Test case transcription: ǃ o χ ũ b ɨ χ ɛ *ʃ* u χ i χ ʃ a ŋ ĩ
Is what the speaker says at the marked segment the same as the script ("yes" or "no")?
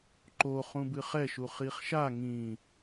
yes